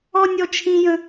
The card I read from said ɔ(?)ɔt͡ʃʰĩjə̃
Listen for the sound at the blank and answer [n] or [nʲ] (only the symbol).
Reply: nʲ